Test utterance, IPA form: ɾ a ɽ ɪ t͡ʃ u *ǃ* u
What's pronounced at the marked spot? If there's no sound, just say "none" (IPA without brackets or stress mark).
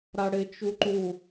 ǃ